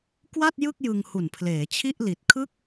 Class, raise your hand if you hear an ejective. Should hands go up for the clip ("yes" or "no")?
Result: no